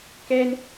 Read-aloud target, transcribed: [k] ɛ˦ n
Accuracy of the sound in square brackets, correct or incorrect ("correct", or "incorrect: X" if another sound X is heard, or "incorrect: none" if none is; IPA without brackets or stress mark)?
correct